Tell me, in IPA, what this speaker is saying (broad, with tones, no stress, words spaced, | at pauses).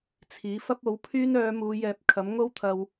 t͡sʰiː˨˥fɐ˥p̚o˨˥wpʰyː˥n œː˨˧muː˨˧ jɛː˧p̚ kʰɐ˨˥mŋo˥wt̪ʰɐ˧w